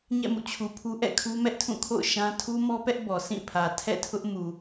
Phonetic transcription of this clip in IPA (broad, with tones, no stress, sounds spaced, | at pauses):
ɲ ɛ̰˦˨ m ṵ˦˨ t͡ɕʰ u˨ pʰ u˦ ʔ ɛ̰˦˨ kʰ u˦ m ɛ˦ ʔ tʰ ũ˦˨ kʰ o̰˦˨ ʊ̯ ʃ ã˦ tʰ u˦ m ɔ˦ p ɛ˦ ʔ b ɔ˨ sʰ ĩ˦˨ pʰ ä˨ tʰ ɛ̰˦˨ tʰ ʊ˦ ʔ m u˨